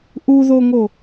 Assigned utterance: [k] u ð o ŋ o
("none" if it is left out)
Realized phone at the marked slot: ʔ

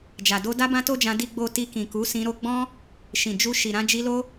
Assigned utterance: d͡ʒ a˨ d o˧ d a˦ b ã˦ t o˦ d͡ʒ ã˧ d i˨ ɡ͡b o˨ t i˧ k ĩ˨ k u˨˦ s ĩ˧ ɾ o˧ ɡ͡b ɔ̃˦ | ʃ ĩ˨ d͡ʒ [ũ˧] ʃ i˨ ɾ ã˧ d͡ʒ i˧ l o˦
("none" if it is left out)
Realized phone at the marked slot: u˧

